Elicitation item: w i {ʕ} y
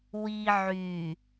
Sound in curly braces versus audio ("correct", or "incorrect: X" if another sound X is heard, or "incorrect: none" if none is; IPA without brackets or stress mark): correct